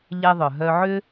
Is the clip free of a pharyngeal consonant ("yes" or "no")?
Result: no